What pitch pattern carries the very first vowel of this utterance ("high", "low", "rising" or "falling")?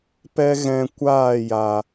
high